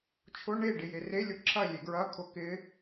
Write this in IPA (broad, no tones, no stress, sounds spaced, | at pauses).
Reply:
t͡ʃʰ ʊ ɳ e ɖ ɪ j e r e lʲ ʊ ǁʰ ɐ lʲ e ɡ ɹ ɐ kʰ ʊ k ɪ